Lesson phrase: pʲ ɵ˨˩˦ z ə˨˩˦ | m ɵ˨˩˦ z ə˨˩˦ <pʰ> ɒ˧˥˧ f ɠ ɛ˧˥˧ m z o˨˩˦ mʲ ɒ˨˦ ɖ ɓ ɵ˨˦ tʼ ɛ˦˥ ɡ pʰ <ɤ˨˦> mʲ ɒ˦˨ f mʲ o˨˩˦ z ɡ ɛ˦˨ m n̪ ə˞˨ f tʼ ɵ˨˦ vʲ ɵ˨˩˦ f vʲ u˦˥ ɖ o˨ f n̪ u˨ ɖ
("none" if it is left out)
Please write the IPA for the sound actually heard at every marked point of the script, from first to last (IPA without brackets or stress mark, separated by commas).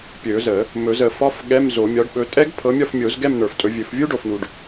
f, ɤ˨˦